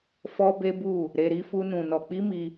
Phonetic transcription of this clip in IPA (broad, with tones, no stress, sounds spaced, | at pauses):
f ɔ˦ b e˦ b u˦˨ | ɾ e˧ ɾ i˦ f u˦ n ũ˧ n ɔ˧ k͡p i˦ m i˧